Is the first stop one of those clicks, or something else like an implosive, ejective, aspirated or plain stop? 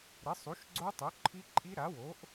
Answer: click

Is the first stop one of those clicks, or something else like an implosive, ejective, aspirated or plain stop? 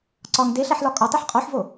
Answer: click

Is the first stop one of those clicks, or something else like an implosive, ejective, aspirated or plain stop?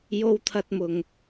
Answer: aspirated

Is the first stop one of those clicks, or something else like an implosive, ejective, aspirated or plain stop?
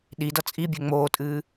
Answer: implosive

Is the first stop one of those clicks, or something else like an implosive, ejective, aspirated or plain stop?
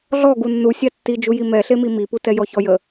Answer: plain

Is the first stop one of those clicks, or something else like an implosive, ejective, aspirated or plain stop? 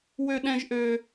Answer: implosive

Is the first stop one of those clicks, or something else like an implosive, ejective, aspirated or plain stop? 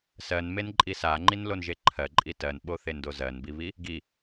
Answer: click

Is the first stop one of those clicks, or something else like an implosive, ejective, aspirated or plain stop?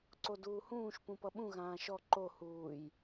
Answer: click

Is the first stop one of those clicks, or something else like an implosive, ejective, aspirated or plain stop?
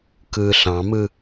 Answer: plain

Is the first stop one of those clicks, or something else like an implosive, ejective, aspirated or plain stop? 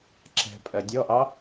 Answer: click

